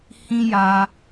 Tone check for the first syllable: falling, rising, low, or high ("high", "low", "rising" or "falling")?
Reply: high